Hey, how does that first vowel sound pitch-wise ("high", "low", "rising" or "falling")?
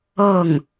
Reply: falling